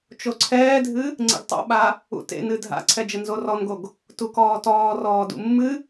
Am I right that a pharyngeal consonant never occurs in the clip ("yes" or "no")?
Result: yes